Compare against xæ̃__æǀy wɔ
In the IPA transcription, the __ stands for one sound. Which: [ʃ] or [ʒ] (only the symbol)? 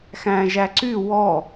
ʒ